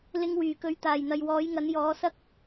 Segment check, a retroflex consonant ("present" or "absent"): absent